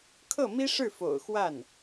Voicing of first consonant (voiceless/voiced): voiceless